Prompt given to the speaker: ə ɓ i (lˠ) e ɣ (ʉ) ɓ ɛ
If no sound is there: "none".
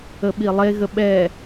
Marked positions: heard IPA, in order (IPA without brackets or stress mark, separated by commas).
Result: lˠ, ə